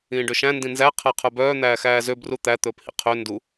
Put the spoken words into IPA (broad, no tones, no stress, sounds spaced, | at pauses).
ĩː ɖ ø ʃ æ̃ n d ĩ n z æ qʰ æ qʰ œ b œː n̪ æː x æː z ø b r u t̪ æ t̪ ɵː p h ḭ qʰ ø n d u